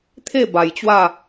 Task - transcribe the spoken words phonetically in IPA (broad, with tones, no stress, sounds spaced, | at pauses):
t̪ʰ e˥˧ b a˧ j t͡ɕ w a˥˧